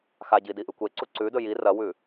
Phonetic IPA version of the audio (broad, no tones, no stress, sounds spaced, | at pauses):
x a ɟ i d i ʔ ɨ kʷ e ǀ u ǀ ʉ d ɵ j i r ɐ w ʉ